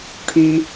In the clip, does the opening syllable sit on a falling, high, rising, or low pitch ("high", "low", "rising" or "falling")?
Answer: low